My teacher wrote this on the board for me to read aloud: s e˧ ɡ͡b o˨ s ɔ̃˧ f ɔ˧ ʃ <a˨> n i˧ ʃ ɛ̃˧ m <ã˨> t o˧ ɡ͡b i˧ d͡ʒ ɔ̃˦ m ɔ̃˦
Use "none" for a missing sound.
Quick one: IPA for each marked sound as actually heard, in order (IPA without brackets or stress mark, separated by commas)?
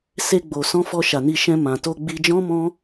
a˨, ã˨